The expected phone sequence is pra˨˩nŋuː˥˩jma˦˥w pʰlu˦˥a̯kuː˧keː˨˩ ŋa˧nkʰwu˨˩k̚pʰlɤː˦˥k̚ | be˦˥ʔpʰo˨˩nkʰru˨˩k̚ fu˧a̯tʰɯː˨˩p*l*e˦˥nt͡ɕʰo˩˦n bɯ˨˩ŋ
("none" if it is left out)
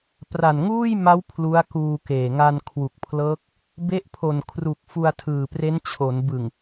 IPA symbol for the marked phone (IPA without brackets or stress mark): r